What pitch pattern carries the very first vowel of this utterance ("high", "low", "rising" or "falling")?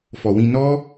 low